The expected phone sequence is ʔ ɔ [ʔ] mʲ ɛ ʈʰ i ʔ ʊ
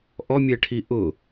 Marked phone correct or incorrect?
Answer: incorrect: none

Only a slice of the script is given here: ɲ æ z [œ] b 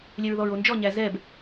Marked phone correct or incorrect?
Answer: incorrect: ɛ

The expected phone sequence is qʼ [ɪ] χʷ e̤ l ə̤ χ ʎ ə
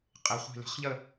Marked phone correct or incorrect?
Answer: correct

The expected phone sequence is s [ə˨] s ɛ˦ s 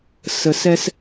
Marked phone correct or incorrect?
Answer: correct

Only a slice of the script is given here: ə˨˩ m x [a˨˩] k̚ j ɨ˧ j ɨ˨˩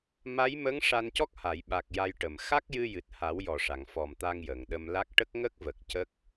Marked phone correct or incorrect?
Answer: incorrect: a˦˥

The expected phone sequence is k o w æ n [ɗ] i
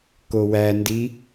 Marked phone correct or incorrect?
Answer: incorrect: d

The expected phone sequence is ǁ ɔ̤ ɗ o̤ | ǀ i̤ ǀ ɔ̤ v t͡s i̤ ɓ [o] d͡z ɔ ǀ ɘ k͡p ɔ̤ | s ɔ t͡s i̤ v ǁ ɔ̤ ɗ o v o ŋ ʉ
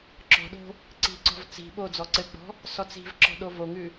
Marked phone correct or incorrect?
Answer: correct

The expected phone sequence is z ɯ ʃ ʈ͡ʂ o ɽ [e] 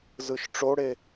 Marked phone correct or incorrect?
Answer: correct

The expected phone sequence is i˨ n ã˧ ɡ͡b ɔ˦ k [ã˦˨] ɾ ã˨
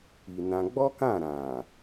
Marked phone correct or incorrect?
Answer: correct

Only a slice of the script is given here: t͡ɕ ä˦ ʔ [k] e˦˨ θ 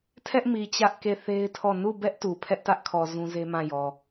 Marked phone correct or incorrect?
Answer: correct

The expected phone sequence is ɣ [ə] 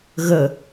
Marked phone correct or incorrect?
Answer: correct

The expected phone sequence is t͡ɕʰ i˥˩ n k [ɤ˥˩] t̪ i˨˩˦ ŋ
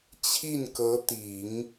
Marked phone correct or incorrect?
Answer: incorrect: ɤ˧˥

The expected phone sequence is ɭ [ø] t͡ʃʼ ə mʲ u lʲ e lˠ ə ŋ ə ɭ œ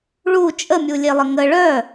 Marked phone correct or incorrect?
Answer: incorrect: u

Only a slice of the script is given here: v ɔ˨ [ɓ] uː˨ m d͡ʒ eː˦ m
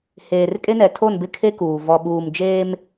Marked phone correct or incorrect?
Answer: correct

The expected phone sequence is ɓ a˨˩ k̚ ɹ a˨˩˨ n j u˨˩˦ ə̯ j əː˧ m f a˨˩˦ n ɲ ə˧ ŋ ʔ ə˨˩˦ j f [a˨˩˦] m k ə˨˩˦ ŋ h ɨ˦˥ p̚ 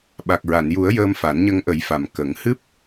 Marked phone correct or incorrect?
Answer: incorrect: a˨˩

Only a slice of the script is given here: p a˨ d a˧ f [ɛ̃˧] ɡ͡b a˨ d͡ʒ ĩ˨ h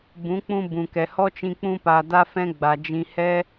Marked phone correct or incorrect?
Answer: correct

